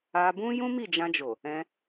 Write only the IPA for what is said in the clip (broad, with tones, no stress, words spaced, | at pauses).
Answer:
a˧bũ˦ jũ˦mi˦˨d͡ʒã˧d͡ʒo˨ | ɛ̃˧